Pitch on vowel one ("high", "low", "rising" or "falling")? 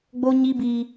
high